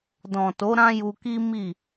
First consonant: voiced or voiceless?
voiced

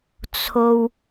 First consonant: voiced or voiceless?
voiceless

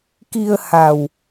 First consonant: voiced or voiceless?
voiceless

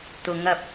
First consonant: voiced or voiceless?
voiceless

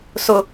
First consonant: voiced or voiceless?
voiceless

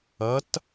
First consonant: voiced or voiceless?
voiceless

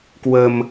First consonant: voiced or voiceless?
voiceless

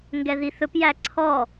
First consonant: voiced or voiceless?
voiced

